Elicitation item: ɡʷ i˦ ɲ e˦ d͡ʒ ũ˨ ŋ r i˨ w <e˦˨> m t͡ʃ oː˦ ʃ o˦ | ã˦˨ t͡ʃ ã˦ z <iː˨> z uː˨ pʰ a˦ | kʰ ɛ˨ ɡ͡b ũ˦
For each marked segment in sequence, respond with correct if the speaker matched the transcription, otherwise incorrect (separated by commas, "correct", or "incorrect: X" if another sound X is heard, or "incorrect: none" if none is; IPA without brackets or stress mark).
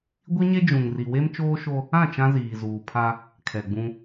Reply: incorrect: e˦, correct